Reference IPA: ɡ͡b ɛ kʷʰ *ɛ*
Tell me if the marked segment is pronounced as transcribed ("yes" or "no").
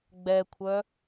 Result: no